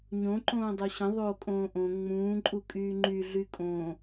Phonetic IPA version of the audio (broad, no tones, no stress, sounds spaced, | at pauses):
ɲ õ ǃ õː dˤ o ɕ ə̃ ðˤ oː kʼ õː ʔ õ ŋ͡m ũː ǃʼ u kʼ yː ŋ͡ǃ y ɮ y kʼ õː